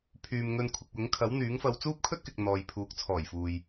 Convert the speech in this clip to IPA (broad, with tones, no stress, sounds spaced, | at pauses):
pʰ yː˨ m ŋ ɵ˧ n kʷʰ ɪ˨ k̚ w ʊ˨˥ ŋ kʰ ɐ˨˥ w n̪ yː˨˥ ŋ f ɐ˧ w t͡s uː˥ p̚ kʰ ɵ˥ t̚ k ɪ˨ k̚ n̪ ɔː˨ j pʰ uː˨˥ k̚ t͡sʰ ɔː˨˩ j f uː˨ j